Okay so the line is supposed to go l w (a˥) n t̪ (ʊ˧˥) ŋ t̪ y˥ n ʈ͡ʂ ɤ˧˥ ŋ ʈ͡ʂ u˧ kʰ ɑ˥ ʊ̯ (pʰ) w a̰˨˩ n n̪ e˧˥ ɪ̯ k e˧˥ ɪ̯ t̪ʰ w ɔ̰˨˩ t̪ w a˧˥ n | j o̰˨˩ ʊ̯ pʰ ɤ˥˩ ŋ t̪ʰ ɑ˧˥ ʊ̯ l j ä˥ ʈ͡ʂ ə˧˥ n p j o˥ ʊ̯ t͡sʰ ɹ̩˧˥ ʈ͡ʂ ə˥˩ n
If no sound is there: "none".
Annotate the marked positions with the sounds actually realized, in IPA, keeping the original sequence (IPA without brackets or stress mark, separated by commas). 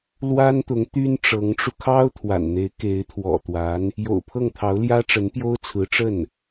a˥, ʊ˧˥, t̪ʰ